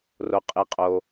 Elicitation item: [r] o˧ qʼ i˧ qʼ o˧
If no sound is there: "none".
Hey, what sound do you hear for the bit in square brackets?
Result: r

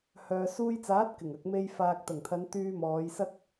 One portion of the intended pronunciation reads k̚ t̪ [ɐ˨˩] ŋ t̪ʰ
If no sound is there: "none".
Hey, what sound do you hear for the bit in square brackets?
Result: ɐ˨˩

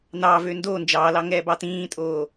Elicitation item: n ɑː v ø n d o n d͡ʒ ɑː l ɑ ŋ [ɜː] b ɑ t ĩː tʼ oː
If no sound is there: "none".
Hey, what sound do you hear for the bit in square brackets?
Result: ɛː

